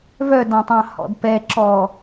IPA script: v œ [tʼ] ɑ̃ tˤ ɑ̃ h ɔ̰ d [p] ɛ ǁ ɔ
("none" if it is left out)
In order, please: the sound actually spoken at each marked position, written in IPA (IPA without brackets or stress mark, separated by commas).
d, p